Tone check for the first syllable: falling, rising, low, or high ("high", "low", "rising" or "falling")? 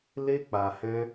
high